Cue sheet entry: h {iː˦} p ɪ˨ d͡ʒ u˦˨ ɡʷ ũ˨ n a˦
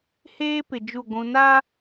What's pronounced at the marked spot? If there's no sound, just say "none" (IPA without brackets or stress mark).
eː˦